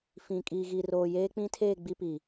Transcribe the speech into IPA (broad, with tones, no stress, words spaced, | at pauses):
fĩ˨ kʼiː˨ɣi˨roː˨ jeː˦ k͡pĩ˦tʰeː˦˨ ɡ͡bi˦pi˨